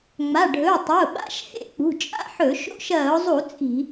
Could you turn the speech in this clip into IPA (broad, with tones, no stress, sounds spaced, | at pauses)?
ŋ͡m a˩˧˩ ɖʱ ɵ˩˧˩ ʊ̯ tˤ ɐ˩˧˩ ʊ̯ ɓ a̰˧˥˧ ʃ h ḛ˥˨ k͡p ṳ˩˧˩ t͡ʃʼ a̰˥˨ ħ ɵ˧˩˧ ʃ o̰˧˥˧ ʃ ɐː˧˩˧ ʊ̯ zˤ u˧˩˧ t͡sʼ i̤˧˩˧